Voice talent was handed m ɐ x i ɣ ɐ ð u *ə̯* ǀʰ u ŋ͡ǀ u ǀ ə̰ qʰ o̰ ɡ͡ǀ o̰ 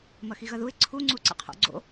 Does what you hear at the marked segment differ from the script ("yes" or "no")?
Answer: yes